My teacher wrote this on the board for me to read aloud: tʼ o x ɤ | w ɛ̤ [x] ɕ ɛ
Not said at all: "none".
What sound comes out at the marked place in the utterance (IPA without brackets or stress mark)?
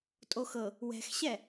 x